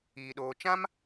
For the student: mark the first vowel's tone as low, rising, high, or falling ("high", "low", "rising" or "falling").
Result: low